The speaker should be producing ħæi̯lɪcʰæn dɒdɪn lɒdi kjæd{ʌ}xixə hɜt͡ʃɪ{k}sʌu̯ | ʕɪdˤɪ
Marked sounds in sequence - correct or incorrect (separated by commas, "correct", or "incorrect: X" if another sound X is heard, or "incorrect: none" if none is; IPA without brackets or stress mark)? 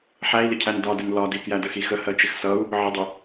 incorrect: ə, incorrect: x